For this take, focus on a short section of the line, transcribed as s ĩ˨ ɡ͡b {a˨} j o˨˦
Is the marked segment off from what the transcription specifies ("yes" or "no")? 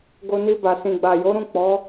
no